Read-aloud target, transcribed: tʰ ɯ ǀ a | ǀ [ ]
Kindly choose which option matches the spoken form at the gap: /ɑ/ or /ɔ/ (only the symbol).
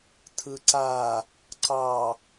ɑ